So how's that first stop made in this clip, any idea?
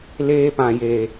plain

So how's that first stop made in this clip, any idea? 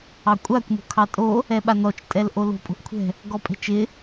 ejective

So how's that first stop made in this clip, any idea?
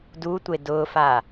plain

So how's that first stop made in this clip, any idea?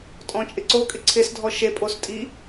ejective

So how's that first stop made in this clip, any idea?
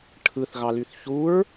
aspirated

